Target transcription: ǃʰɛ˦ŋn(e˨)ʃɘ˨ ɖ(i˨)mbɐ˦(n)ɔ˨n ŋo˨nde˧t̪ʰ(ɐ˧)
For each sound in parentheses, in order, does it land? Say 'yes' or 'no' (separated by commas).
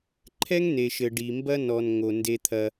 yes, yes, yes, yes